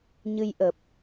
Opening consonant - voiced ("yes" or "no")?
yes